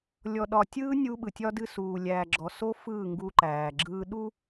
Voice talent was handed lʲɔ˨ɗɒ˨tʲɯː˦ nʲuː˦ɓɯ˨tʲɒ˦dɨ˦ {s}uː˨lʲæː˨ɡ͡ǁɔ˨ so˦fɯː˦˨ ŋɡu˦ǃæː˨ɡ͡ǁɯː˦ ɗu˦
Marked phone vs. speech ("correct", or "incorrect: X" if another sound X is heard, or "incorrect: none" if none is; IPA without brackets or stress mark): correct